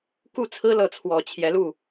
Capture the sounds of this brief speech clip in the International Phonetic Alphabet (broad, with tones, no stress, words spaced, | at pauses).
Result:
ku˥˩t͡sʰɹ̩˥lɤ˧˥t͡sʰwɔ˨˩ t͡ɕʰjɛ˧˥lu˥˩